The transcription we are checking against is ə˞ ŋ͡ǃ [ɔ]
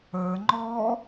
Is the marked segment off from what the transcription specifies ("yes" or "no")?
no